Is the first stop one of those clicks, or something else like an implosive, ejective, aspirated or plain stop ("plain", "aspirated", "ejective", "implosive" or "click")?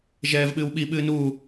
implosive